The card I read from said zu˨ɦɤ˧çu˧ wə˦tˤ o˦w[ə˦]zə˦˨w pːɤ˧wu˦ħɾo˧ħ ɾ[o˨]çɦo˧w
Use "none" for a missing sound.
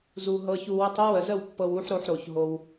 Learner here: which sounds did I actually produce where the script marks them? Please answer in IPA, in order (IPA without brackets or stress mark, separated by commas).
ə˨, o˨